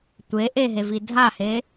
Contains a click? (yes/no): no